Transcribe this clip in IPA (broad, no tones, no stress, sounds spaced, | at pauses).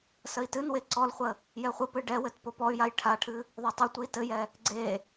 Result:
s ə i̯ t ɨ n w e ǀ ɔ l χʷ ə | j ɛ χʷ ə p ɨ ɖ ɛ w ɘ t p o p ɔ y̯ j a j ʈʰ a ʈʰ ɨ | ðˤ o tˤ ɘ tʷ ɨ i̯ t ɘ j ɛ | ɡ͡ǀ e